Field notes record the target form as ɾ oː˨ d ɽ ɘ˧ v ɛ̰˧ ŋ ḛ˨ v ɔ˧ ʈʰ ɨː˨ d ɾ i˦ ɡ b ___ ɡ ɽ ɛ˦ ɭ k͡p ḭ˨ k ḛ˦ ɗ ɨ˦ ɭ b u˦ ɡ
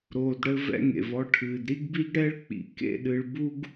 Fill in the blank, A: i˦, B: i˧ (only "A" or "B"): A